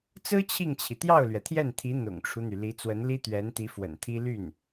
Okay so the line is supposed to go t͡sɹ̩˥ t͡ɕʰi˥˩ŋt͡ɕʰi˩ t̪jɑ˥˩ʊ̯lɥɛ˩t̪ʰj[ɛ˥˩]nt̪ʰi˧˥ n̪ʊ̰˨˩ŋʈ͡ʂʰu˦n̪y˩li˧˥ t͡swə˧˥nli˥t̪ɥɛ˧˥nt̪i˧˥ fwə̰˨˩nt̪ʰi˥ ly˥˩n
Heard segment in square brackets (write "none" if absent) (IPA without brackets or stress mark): ɛ˥˩